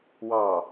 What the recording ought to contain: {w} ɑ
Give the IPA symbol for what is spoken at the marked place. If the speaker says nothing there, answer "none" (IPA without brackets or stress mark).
w